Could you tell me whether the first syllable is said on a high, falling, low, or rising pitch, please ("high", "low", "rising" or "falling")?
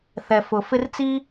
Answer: low